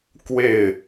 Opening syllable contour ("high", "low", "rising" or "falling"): falling